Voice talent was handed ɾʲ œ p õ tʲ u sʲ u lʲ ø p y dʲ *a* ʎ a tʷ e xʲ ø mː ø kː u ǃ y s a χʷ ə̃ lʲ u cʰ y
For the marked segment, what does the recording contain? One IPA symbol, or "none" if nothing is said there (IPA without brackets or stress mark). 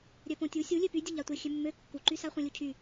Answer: ə